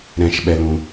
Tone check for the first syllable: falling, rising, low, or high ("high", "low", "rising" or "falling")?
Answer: high